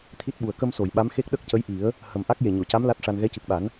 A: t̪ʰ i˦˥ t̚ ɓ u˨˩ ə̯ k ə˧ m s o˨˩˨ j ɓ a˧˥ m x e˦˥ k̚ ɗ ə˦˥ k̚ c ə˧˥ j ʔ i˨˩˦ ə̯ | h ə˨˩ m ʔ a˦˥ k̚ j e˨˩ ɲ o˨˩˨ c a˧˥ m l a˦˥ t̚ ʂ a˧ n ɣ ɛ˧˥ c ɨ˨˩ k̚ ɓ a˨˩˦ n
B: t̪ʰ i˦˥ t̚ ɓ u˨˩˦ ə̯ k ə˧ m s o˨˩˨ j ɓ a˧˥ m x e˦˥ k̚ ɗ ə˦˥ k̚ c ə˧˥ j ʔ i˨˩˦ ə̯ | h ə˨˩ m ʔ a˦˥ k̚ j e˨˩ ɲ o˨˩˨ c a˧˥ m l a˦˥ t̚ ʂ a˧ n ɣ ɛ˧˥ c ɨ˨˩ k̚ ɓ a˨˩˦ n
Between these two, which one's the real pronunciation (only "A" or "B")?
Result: A